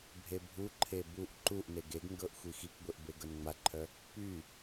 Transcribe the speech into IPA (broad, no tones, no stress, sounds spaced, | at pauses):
bʱ e bʱ u ǃʰ e b u ʔ ǃ u ʔ n e ɡ e ɡ ŋ ɡ ɤ ʔ xʷ i x i k ɡʷ e ʔ b e ɡ ɤ n ŋ͡m a ǃʰ œ | p y